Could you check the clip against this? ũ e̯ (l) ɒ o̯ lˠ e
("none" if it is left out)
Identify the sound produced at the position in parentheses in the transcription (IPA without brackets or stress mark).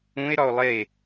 ɾ